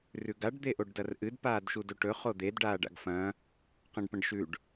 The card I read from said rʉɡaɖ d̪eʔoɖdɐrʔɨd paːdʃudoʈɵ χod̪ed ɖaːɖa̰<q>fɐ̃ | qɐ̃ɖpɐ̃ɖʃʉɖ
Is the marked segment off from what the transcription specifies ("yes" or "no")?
yes